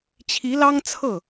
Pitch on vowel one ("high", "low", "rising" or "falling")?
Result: rising